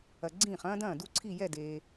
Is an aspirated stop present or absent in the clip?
present